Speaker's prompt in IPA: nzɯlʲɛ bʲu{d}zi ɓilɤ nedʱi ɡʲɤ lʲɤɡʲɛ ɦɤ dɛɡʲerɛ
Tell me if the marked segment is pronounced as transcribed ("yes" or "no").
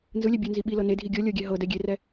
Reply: no